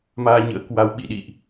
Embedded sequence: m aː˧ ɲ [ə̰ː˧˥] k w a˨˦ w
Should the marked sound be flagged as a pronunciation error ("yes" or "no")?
no